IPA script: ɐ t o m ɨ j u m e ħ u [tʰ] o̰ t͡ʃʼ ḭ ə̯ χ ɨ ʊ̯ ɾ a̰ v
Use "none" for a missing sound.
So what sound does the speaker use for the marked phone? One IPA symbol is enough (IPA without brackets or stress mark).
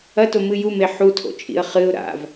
tʰ